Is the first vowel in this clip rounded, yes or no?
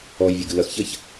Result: yes